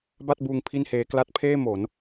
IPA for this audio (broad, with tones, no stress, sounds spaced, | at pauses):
b a˥˩ t̚ b uː˧ ŋ pʰ i˥˩ n h eː˦˥ k l a˦˥ t̚ pʰ eː˥˩ m o˩˦ n